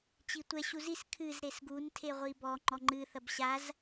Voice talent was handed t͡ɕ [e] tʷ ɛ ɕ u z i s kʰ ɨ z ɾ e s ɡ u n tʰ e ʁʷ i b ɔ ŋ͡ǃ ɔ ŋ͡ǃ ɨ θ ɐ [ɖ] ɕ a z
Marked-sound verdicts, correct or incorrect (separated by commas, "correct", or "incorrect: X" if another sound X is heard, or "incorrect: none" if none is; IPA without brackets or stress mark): incorrect: i, incorrect: b